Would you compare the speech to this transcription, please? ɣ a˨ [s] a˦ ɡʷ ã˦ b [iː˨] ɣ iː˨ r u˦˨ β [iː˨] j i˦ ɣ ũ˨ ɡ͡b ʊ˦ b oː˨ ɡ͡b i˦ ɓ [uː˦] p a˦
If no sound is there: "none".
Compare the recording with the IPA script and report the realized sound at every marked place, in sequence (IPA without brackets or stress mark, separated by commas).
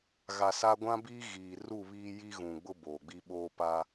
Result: s, iː˦, iː˦, oː˦